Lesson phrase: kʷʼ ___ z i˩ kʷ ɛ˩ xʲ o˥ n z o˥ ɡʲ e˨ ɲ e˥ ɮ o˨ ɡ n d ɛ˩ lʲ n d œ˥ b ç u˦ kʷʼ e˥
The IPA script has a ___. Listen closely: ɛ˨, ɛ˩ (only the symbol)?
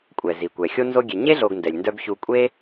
ɛ˩